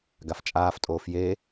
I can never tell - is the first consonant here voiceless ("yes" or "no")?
no